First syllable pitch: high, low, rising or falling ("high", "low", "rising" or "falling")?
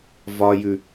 low